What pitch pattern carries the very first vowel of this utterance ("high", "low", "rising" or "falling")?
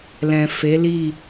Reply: low